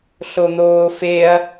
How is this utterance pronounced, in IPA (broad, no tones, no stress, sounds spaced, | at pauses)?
ɬ o n̪ oː f e ɐ̯